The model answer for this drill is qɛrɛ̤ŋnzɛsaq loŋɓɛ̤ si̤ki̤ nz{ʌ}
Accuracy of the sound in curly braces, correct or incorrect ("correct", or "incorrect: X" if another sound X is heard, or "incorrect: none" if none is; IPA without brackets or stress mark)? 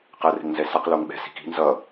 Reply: correct